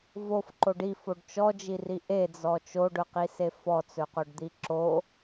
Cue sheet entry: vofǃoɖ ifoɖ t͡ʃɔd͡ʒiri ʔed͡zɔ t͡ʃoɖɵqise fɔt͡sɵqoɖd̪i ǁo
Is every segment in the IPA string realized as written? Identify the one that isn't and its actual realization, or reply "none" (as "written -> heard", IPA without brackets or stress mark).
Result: none